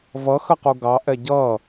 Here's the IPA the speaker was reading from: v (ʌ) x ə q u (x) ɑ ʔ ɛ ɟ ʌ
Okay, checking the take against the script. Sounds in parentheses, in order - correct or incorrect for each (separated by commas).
correct, incorrect